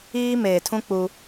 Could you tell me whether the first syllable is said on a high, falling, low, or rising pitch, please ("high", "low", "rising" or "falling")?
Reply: high